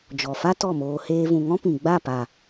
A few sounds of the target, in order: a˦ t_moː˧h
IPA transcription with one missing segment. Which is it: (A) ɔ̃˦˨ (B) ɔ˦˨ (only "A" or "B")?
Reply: B